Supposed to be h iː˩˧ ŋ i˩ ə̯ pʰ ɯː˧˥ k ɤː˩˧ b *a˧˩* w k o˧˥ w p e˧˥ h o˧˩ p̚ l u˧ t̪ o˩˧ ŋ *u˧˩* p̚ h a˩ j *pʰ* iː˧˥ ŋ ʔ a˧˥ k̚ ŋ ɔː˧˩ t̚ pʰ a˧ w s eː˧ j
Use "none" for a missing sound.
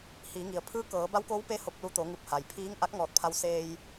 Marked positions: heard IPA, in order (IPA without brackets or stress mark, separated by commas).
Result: a˧˥, u˧˩, pʰ